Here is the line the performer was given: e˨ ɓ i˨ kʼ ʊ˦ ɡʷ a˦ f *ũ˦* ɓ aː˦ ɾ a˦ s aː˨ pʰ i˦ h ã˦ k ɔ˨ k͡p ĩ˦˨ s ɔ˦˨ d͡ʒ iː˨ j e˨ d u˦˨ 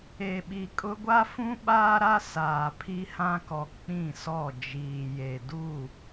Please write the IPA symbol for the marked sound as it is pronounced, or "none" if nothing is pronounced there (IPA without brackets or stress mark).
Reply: ũ˦